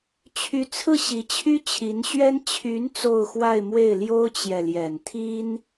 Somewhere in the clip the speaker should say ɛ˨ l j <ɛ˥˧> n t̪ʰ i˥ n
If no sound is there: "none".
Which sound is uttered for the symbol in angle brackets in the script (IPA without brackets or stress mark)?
ɛ˨˩